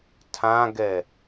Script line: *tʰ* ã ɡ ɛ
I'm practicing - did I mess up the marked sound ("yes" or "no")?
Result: no